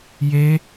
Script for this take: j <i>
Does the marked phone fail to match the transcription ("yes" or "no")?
yes